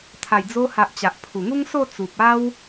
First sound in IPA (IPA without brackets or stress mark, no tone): t̪ʰ